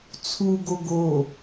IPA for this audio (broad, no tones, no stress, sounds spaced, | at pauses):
t͡sʰ u ɡ o ɡ o